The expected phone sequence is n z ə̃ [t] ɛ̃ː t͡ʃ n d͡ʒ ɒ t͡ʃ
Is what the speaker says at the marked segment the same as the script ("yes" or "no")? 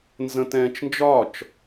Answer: yes